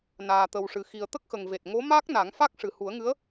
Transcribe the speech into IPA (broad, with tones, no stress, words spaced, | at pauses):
naː˨˩t̪ə˨˩wʂɨ˨˩xi˨˩ə̯ t̪ə˦˥k̚xə˨˩ŋve˨˩t̚ ŋo˧˥ma˦˥k̚na˨˩˦ŋ fa˦˥k̚ʂɨ˨˩hu˨˩˦ə̯ŋɨ˧˥ə̯